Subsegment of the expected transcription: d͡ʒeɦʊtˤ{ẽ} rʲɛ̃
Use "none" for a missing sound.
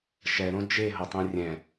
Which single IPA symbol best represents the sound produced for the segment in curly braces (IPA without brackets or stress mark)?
ẽ